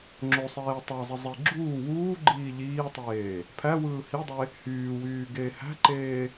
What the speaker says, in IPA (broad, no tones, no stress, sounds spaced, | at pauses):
ŋ͡ǁ o sˤ eː tˤ æ zˤ i zˤ i ɡ͡ǁ uː w uː ɡ͡ǃ iː ʎ iː tˤ eː | pʰ æ w ɯː h i dˤ e | h yː w yː ɡ eː h æ̤ ǃ eː